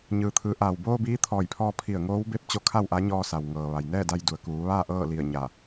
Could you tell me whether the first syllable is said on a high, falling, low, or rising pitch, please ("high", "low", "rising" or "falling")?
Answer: low